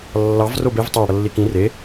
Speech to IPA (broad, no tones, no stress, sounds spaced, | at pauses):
lː ɑ v r o b e v tˤ ɑ ɽ ʌ lː i k ĩ r e